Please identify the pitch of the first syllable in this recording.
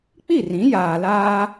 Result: falling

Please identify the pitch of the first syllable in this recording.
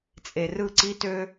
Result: low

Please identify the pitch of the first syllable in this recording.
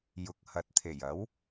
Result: rising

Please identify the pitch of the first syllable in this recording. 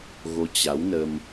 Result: rising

